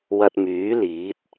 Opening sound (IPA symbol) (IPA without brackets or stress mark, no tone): w